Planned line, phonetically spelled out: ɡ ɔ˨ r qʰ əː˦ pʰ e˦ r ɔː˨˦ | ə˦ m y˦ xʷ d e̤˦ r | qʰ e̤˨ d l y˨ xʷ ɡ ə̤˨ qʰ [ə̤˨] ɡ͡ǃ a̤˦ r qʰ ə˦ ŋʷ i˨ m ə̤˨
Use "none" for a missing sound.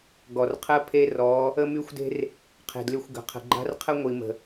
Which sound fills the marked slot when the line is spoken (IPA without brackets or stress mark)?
ə̤˨